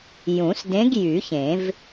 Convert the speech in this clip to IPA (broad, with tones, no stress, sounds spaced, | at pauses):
j ũ˨˩˦ s d ẽ˧˥ ɡ j y˨˩˦ ç ẽ˨˩˦ v